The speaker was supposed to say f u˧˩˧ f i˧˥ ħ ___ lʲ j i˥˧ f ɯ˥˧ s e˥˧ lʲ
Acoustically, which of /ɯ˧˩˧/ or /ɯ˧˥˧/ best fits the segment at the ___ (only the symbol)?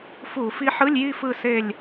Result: ɯ˧˥˧